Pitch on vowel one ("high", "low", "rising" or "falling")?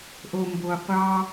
low